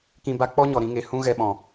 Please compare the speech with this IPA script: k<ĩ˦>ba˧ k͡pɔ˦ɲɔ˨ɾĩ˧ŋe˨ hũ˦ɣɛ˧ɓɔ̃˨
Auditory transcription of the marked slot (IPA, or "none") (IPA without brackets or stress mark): ĩ˧